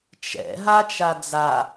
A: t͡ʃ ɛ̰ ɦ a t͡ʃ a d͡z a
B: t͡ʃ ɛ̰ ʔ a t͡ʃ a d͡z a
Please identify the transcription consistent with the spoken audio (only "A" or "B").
A